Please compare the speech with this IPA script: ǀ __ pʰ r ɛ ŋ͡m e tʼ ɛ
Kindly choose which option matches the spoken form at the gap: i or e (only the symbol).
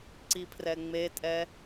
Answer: i